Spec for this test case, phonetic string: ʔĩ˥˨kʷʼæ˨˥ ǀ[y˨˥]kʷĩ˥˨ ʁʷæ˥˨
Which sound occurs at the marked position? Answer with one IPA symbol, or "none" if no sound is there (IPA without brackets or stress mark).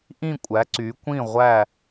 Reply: y˨˥